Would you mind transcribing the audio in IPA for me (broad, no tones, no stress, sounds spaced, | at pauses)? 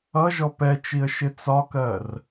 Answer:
ʌ ʒ ɔ p ɛ t͡ʃ i ə̯ ʃ ɪ t͡s ɒ k ɜ r